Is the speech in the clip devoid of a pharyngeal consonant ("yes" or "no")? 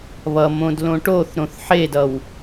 no